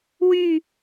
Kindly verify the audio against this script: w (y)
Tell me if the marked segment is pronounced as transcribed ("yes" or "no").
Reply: yes